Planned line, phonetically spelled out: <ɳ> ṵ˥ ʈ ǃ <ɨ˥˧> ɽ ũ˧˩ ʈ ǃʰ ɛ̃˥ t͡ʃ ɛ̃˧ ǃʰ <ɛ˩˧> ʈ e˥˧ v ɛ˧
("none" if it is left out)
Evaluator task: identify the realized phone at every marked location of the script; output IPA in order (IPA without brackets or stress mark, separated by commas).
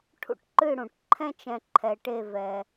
ʈʰ, ɨ˥˧, ɛ˧